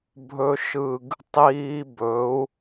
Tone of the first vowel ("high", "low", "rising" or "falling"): high